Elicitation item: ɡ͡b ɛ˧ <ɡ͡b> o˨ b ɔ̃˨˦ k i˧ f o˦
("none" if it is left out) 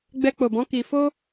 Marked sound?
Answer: k͡p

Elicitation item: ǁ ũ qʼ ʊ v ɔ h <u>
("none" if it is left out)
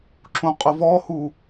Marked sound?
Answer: u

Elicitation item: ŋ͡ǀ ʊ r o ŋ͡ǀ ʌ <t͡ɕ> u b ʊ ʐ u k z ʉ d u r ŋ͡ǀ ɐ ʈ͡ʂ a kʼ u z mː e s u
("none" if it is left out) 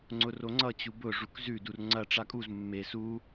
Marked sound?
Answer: t͡ɕ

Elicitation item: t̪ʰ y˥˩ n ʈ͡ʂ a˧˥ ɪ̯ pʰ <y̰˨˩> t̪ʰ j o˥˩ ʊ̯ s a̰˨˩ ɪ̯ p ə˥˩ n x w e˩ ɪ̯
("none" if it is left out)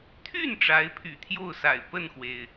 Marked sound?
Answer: y̰˨˩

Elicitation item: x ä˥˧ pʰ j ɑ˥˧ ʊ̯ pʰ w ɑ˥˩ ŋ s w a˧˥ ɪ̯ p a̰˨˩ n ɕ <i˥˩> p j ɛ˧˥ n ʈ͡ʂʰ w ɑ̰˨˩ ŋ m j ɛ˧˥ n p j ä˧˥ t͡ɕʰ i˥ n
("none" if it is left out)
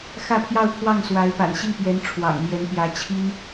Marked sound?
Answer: i˥˩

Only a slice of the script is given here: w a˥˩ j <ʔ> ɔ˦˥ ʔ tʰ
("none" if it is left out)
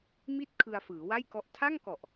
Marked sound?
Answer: k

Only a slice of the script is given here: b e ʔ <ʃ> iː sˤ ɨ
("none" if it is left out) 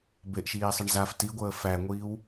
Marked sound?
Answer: ʃ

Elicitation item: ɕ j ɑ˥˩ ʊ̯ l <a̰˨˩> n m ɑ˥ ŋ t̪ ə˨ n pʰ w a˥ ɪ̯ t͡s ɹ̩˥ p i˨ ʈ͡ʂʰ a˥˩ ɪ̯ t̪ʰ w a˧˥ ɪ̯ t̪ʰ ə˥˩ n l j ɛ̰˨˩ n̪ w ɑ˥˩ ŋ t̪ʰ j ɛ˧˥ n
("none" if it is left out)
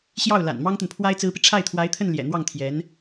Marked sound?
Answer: a̰˨˩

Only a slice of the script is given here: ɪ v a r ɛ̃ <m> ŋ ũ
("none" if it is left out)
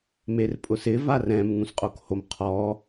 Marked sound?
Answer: m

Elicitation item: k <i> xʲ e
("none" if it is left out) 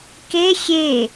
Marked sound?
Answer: e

